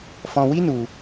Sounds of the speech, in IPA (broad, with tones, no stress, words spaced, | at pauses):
fɔ̃˧wi˦ nu˧